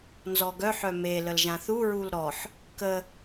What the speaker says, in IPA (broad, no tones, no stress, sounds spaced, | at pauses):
n z ɔ ɡ œ ħ œ m e l ə l ʒ ã θ u ɹ u l ɾ ɔ ħ | k ə